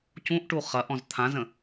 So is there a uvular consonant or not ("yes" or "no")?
yes